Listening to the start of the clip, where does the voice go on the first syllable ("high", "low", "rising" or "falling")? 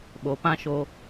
low